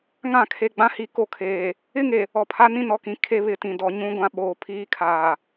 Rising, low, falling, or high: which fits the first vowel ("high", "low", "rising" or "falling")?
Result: falling